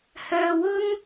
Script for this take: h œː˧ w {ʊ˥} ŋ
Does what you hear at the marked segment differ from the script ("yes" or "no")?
no